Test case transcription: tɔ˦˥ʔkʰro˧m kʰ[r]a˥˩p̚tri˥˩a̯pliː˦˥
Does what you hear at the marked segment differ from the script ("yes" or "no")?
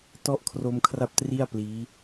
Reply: no